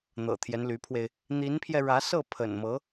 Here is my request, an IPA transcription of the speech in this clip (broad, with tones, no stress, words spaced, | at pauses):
n̪ɤ̰˨˩t̪ʰjɛ˦nly˧˥pʰwe˧ɪ̯ | n̪i˧˥npʰjɛ˧ ɻä˧˥sɤ˥˩ pʰə̰˨˩nmɤ˧˥